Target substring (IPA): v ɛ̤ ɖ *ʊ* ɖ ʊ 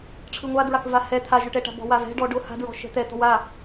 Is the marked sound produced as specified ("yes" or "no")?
no